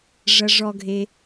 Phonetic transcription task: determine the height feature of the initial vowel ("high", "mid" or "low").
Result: low